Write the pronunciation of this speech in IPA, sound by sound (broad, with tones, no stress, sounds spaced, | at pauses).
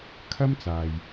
kʰ ɐ˥ m t͡s aː˨ j